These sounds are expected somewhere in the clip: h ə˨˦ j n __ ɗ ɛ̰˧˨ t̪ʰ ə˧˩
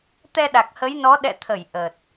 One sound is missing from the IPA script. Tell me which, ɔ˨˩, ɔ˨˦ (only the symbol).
ɔ˨˦